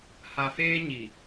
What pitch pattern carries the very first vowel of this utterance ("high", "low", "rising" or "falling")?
low